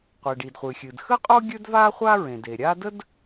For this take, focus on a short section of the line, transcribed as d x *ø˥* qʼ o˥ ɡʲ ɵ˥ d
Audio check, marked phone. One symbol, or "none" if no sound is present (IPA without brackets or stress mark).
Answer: ə˥